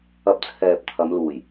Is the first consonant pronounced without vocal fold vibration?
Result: yes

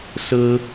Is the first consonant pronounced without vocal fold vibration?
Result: yes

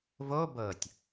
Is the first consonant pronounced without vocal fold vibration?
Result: no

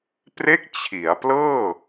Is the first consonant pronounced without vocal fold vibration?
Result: yes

